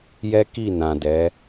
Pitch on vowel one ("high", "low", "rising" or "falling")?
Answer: high